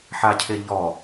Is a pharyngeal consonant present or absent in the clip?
present